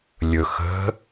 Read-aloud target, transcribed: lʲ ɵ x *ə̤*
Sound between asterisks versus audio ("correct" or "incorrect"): correct